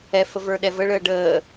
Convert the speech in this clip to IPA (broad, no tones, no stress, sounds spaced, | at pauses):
ɛ f ə v ə˞ ɗ ɛ v ə ɭ əː ɖ əː